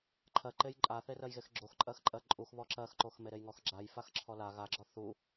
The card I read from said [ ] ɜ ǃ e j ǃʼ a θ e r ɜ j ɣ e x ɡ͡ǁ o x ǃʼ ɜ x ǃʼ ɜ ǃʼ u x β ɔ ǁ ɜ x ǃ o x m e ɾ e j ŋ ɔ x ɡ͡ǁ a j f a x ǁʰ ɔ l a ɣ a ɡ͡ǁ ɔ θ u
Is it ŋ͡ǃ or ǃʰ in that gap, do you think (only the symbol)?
ǃʰ